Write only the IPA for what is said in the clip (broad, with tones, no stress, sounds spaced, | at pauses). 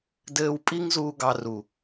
d ɘː˦ w pʼ i˦ ŋ z uː˧ ɡ ɑ˧ r u˨